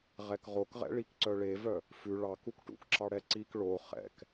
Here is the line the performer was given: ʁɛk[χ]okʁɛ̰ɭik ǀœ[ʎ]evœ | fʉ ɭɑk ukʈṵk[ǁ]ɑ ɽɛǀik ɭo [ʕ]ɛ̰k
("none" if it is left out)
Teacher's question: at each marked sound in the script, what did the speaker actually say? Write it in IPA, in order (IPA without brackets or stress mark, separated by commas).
ʁ, ɭ, ǁ, χ